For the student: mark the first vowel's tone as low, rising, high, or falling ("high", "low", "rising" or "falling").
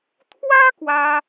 high